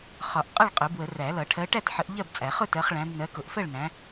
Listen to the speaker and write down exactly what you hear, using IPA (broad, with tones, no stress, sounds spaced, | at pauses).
χ ɒ˨˩˦ ʔ qʼ ʌ˥˨ ɭ qʼ ʊ˨˩˦ b w ə˨˩˦ r æ˨˩˦ l ʌ˨˩˦ ʈʰ ɜ˨˦ ʈ æ˥˨ t ħ ə˨˦ ʔ ʎ ɜ˥˨ b t͡sʼ æ˨˩˦ χ ʊ˥˨ t ɜ˨˦ χ ɭ æ̃˨˦ b n ɜ˨˦ k ʊ˨˩˦ ʔ f ɜ˥˨ ɭ n æ̃˨˦